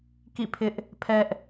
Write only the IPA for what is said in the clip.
k ḭ˦˨ pʰ ɪ˦ ʔ | pʰ ɛ˦ ʔ

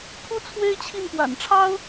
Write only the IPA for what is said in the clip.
pʰ u˥ t͡sʰ w e˥ ɪ̯ t͡ɕʰ i˥˩ n p w a̰˨˩ n ʈ͡ʂʰ ɑ˥ ʊ̯

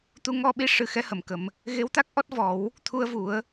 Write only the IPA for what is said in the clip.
t̪ u˧ ŋ ɔ˧ ɓ i˧˥ ʂ ɨ˨˩˦ x ɛ˧˥ h ə˨˩˨ m k ə˨˩˦ m | ɣ e˧˥ w t̪ a˦˥ k̚ ʔ ɔ˦˥ t̚ v ɔ˨˩˦ w | t̪ʰ u˧ ə̯ v u˨˩˦ ə̯

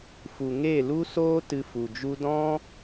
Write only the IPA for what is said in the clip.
f u˨ ŋ e˦˨ l u˦ s oː˦ t ɨ˧ f u˨ d͡ʒ u˦ d ɔ̃˦

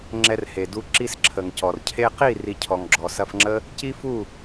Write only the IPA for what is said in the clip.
ŋ͡ǁ ɛ˧ r h e˨ d u˧ ǁ i˦ s ǁʰ ə˨ ŋ c ɔ˨ r cʰ e˧ q i˦˨ r i˨ cʰ ɔ˨ ŋ ɡ͡ǁ ɔ˨ s ɐ˧ f ŋ͡ǁ ə˦ | c i˦ f u˦˨

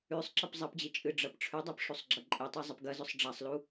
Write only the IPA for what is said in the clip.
ʉ sˤ ǁ ɐ p zˤ ɐ p d͡ʑ i t͡ʃʼ ɨ ɖ͡ʐ ɐ p ʈ͡ʂʰ ʉ dˤ ɐ p ʂ u sˤ ɡ͡ǁ ɐ ǃʼ e tˤ i zˤ ɐ p ɡ ɐ z ɵ sˤ ɖ͡ʐ a sˤ l u

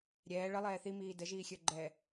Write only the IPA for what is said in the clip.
ɾʲ ɛː ɭ ə lˠ ɛː θ i m iː d ə ʒ iː xʲ ə˞ ɡ͡ǃ ɛː

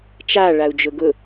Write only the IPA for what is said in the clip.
t͡ʃ a ɭ a u̯ d͡ʒ ʊ ɡ ʊ

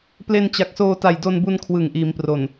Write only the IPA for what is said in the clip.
p l e˧ n t͡ɕ a˨˩ k̚ s oː˧ t a˨˩ j d o˧ n b u˧ n kʰ w ɯ˨˩ ŋ ʔ iː˩˦ m p r o˨˩ n

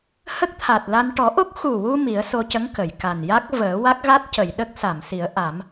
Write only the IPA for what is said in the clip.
h ə˦˥ k̚ t̪ʰ a˨˩ t̚ l a˧ n ʈ ɔ˨˩˦ ʔ o˦˥ k̚ x u˨˩ w u˧ m i˨˩˦ ə̯ s o˧ c ə˧˥ ŋ k ə˨˩˨ j k a˨˩ n j a˦˥ k̚ v əː˨˩˦ w a˦˥ k̚ ɣ a˦˥ t̚ c ə˨˩˨ j ɗ ə˦˥ k̚ s a˨˩˨ m s i˨˩˦ ə̯ ʔ a˨˩˦ m

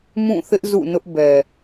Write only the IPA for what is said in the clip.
m ũ˦˨ θ ɪ˦ ʔ z ṵ˦˨ n ʊ˦ ʔ b ɛ˨

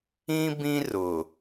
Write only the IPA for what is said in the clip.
ĩ˦ b ĩ˦ r ʊ˨

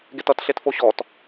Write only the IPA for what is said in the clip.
ɡ e t ʌ t ɬ e t f o ɕ ɔ t

